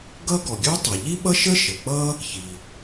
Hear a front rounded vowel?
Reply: yes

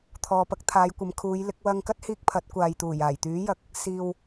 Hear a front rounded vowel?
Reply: yes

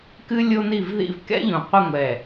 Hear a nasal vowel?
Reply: yes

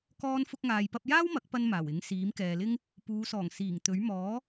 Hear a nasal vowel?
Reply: no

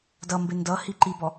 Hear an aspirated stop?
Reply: no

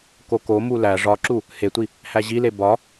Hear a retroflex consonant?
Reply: yes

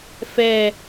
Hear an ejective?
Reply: no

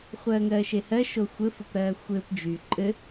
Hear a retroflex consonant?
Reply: no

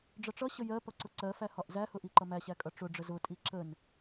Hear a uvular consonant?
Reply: no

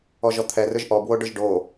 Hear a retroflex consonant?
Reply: yes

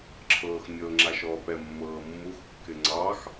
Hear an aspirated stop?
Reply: yes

